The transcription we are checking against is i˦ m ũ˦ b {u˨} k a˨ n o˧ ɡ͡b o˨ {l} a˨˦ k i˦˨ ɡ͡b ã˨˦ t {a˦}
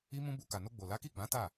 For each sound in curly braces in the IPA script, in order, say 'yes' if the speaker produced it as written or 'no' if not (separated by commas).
no, yes, no